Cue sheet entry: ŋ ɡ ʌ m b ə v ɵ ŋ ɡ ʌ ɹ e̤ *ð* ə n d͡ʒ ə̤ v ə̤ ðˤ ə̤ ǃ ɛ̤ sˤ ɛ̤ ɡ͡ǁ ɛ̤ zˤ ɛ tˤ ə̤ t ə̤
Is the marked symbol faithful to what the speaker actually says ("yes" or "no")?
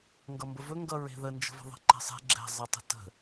yes